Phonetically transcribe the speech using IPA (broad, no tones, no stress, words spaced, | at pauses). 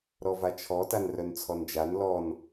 ɾɔvat͡ʃʰɔ tanrœnt͡sʰɔnd͡ʒan lɔn